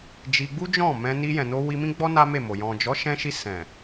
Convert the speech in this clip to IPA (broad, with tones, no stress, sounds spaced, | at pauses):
d͡ʒ i˧ ɡ͡b u˦ d͡ʒ ɔ̃˦˨ m ɛ̃˧ n i˧ j ɛ̃˨ n o˧ w i˧ m ĩ˦ ɡ͡b ɔ˦ n a˦ m e˦˨ m o˨ j ɔ̃˨ d͡ʒ ɔ˨˦ ʃ ɛ̃˧ ʃ i˧ s ɛ̃˨